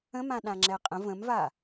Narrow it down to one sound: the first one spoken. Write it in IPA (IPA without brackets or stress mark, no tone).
ə̃